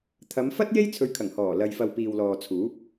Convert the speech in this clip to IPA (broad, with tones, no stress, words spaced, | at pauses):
t̪ʰɐ˨˧mfɐ˥t̚ je˥jt͡sʰɵ˨˧ɥkʰɐ˨˩ŋ hɔː˨˩ lɐ˨jfɐ˨w piː˨wlɔː˨ t͡sʰuː˨˥p̚